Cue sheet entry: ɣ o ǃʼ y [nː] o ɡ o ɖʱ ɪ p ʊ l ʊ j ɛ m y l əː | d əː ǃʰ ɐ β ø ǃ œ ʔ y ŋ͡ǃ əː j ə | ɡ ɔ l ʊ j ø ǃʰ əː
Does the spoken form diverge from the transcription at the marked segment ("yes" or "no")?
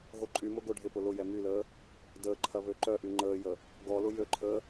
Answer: yes